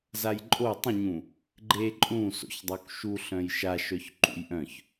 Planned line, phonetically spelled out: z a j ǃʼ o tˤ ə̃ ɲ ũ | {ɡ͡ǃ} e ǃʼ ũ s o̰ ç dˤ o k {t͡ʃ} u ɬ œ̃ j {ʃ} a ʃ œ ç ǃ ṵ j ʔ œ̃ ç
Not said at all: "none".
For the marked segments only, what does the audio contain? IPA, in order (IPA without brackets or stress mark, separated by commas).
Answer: ɡ͡ǃ, ʃ, ʃ